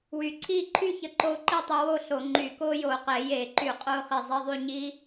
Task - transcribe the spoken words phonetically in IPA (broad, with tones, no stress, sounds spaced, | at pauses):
w y˧˩ ǀʰ iː˥˧ ǃʰ y˥˧ ç ə˧ ǃ o˧ ǃ i˥˧ tˤ i˧ w o˥˧ ɬ o˧˩˧ ŋ͡ǃ y˧˩ k oː˦˥ j oː˧˩ q eː˧˩˧ j eː˧˩˧ ǃ y˧˩˧ qʼ oː˧ χ i˧˩ zˤ e˧˥˧ ðˤ y˥˧ ɲ iː˦˥